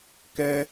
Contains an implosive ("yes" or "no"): no